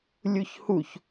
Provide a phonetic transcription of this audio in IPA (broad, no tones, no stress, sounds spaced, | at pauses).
lʲ u ç h u ç